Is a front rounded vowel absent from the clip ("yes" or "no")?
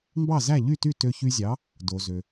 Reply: no